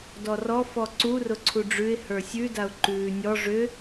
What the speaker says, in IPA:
d ɔ r ɔ f ɔ ǀ u r ʊ ǀʰ u ɖ͡ʐ ʉ ɪ̯ h ə˞ sʲ ʉ d a ʊ̯ ǃ ʉː nʲ ɔ ʐ ʏ

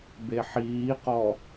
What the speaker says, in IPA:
b e ħ iː q ɔ

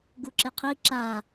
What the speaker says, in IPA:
ɡ u ǁ e qʰ i ǁ a

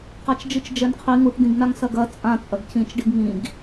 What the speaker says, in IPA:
q a t͡ʃ d͡ʒ ɨ t͡ʃ d͡ʒ ɛ n qʰ i ŋ u ʈ d̪ ĩ ɡ n a ŋ s ɐ ɡ ɐ t͡sʼ ã t͡sʼ ɐ ɡ c ĩ t͡ʃ ɖ i ɡ ŋ ĩ ɡ

